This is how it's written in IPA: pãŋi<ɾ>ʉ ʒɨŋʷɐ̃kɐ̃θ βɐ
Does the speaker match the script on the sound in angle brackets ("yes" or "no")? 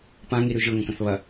yes